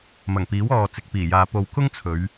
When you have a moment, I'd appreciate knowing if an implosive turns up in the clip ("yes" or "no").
no